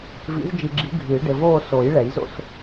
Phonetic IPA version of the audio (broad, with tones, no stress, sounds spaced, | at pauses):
v ḭ˨˩˦ z d͡ʒ i˨ ɡ͡ǁ i˨˩˦ ɡʱ ɨː˨˩˦ ɖ ɘ˨ v oː˥˧ s o˨˩˦ j ɭ ɛ˨˩˦ j z o̰˥˧ s